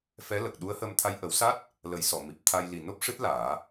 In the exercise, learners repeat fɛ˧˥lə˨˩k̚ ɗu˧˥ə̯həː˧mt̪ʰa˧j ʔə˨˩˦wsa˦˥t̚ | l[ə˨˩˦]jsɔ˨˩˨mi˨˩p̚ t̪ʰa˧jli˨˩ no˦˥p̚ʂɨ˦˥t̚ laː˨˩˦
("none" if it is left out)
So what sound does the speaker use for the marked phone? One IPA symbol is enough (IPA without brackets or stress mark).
ə˨˩˦